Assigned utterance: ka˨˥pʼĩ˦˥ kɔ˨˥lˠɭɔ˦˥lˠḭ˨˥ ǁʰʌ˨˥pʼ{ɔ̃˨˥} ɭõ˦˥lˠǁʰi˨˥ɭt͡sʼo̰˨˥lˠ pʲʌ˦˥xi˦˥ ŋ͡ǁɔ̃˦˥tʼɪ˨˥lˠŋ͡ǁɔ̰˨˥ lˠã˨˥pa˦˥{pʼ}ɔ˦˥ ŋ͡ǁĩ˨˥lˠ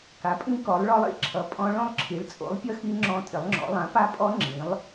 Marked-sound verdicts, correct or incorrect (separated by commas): incorrect, correct